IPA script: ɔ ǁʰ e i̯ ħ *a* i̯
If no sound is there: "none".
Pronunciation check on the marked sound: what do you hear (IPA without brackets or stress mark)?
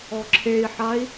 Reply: a